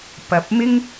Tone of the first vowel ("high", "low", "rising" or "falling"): low